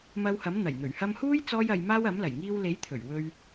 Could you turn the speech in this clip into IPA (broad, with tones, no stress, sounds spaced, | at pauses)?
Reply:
m ɐ˧ w h ɐ˨˥ m n̪ ɐ˨˩ j n̪ ɵ˨˩ ɥ h ɐ˧ m h uː˥ j t͡s ɔː˥ j ɐ˧ j m aː˥ w ɐ˨˥ m l ɐ˨˩ j ŋ iː˧ w l e˨˥ j t̪ʰ ɵ˨˩ ɥ w ɵ˧ ɥ